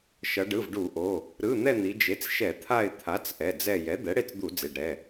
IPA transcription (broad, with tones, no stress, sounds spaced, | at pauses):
ʃ ʌ˩˧ ɖ ɯ˩˧˩ v ɖ u˧˩˧ ʔ o˩˧˩ | ɾ ɯ˩˧˩ n̪ ɛ˦˨ n̪ i˩˧ d͡ʒ e˩˥ t͡s ʃ ɛ˧˩˧ t̪ʰ a˦˨ ɪ̯ t̪ʰ a˩˥ t͡s ʔ ɛ˩˧˩ d͡z ɛ˦˨ j ɛ˩˥ d̪ ɛ˩˥ ɽ e˦˨ t͡s d̪ u˧˩˧ d͡z e˩˧˩ ɖ ɾ ɛ˩˧˩